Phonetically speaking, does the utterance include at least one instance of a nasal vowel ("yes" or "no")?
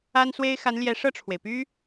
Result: no